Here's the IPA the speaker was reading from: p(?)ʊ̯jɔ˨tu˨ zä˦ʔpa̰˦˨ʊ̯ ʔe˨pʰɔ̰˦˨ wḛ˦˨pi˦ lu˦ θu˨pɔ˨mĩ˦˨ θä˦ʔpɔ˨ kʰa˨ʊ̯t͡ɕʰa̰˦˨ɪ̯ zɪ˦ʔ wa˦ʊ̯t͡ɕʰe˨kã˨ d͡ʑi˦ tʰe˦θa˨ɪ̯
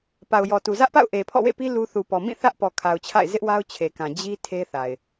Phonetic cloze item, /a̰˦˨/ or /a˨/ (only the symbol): a˨